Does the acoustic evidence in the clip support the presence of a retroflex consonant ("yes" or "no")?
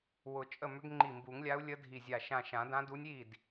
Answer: no